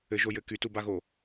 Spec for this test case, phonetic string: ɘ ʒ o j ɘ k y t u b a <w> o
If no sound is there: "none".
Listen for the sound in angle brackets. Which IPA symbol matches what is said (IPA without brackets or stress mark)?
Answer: ɣ